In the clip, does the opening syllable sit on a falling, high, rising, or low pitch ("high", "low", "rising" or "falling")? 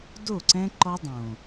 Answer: falling